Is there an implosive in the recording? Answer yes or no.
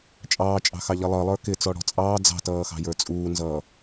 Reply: no